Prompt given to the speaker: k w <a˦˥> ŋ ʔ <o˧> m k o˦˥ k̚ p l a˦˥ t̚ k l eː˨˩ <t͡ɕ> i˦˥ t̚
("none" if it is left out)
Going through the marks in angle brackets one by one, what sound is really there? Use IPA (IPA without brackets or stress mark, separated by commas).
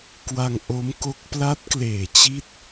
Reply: a˧, o˦˥, t͡ɕ